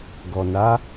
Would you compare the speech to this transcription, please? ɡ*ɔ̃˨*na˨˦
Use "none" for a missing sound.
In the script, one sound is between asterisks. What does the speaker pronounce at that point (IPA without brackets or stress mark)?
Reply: ɔ˨